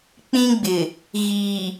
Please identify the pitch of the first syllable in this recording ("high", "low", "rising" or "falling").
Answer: high